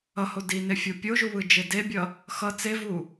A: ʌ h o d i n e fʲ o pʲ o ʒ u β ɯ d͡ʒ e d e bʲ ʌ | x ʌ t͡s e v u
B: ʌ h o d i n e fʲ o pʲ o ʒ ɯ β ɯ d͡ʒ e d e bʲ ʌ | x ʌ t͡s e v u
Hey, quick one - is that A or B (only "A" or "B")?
A